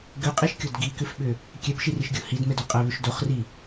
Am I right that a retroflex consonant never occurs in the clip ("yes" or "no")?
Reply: yes